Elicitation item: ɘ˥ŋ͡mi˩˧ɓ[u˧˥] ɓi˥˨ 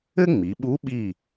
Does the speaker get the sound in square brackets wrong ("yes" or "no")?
no